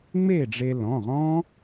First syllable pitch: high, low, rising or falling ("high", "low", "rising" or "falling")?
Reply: falling